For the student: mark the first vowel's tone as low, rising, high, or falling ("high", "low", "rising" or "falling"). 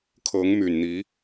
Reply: rising